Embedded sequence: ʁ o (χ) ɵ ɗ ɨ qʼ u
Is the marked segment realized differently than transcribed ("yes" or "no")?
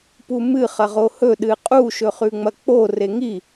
yes